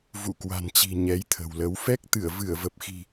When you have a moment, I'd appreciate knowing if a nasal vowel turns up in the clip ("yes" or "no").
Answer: no